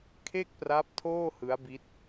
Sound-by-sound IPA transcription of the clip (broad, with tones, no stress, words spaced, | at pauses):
kʰe˥˩k̚pra˦˥p̚tʰoː˥˩hɯ˦˥a̯ bi˦˥t̚